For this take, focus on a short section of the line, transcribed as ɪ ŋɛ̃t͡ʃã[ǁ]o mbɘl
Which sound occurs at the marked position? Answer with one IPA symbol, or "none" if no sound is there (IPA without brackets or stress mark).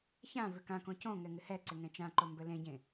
ǃ